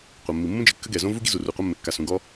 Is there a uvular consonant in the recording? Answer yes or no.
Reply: yes